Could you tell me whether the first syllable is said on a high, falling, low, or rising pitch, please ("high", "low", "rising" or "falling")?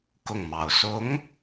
falling